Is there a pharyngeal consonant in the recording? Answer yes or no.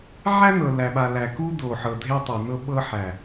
yes